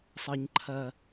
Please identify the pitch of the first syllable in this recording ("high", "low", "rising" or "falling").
low